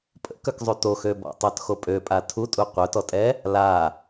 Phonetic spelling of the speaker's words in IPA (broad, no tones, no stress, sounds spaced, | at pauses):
pʼ ə̰ k œ k zˤ y t o x ø b ɔ̰ tˤ œ t x o pʼ ø pʼ a tʰ u tʼ u qʷ œ t ɔ tʼ ɛ | l a